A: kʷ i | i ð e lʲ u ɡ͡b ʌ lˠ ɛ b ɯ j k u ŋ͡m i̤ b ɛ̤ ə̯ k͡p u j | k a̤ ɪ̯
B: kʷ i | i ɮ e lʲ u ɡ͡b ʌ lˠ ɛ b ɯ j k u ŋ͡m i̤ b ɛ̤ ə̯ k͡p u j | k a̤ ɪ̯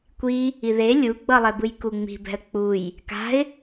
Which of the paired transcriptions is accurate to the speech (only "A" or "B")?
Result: A